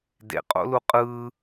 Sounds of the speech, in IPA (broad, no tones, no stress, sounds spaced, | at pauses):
d ḛ qʼ o̰ l u qʼ ɯː